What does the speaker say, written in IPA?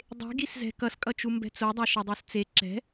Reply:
dˤ e̤ ɡ i s z ɛ̤ k ʌ s kʼ ʌ t͡ʃ u m b ɛ̤ t͡s o dˤ a ʃ ʌ dˤ u s t͡s e ǁ ɛ̤

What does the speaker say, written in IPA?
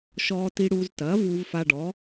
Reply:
ʃ ɔː˧ t i˧ ɽ uː˧ z t ɐː˩˥ v uː˧ v f a˧ ɖ ɔ˩˥

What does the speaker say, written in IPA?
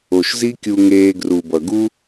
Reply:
o˨ ʃ z i˦ kʲ u˧ ŋ eː˧ ɡ r u˨ b ʌ˨ ɡ u˦

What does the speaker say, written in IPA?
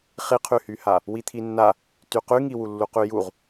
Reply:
χ i qʰ y h y h a | w i t̪ʰ i nː a | t y q y ŋ i w u lː u q y j u ʁ

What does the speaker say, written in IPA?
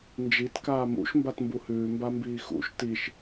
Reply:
n d͡ʒ i t k aː m ṵ ʃ m b a t m b u h ʉː m b a m b iː x ṵ ʃ t i ʃ

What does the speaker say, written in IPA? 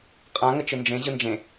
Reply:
qʼ ã ŋ ə t͡ʃ ɯ n d͡ʒ ẽ ʑ ɯ n d͡ʒ ẽ

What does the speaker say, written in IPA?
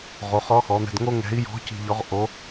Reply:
ʁ o˩˧ χ ɔ˧˥ x ɔ˩˧ n̪ ɛ̤˧ d ŋ o˥ ŋ ɛ̤˧˥ i̯ j ɔ̤˧˥ c i̤˧ ʎ ɔ˧˥ ʁ ʔ o˧˥

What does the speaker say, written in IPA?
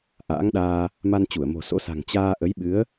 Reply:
ʔ a̰ː˧˥ ŋ ɗ aː˧ | m a˧ n t͡ɕ u˧˩ ə̯ m o̤˨˩ s o̰˧˥ s a̤˨˩ ŋ t͡ɕ aː˧ ʔ ə˨˦ j ɓ ɨ˨˦ ə̯

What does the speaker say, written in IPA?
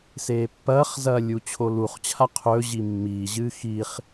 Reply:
s eː pː ɐː χ z ɐː lʲ u t͡ɕʰ o l u χ t͡ɕʰ a qʰ ɵː ʑ i mː iː ʑ ɨː x i χ

